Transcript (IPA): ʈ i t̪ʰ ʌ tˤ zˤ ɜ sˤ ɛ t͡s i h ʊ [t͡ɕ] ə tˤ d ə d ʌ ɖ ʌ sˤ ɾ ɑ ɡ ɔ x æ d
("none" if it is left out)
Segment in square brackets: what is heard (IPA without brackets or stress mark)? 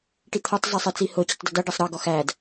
t͡ɕ